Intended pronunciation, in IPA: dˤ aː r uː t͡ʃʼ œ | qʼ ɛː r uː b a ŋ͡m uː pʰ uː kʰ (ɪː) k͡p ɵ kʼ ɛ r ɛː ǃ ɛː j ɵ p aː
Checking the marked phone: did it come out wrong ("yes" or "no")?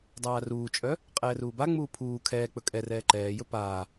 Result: yes